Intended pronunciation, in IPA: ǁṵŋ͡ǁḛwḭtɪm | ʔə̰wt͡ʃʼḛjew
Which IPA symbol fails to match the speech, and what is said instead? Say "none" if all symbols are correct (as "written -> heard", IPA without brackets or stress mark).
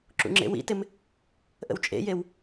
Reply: none